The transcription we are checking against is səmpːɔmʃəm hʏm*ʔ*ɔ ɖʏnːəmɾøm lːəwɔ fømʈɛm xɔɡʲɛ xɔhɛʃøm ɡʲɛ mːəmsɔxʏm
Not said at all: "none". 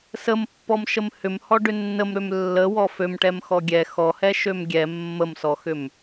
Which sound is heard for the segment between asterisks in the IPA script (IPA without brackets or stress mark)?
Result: h